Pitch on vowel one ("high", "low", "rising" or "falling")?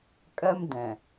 high